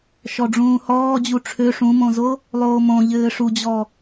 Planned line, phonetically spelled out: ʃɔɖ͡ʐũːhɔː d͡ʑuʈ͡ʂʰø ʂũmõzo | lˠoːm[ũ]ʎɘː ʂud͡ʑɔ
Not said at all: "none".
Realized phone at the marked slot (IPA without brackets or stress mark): õ